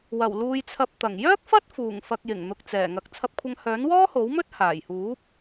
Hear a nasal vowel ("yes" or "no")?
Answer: no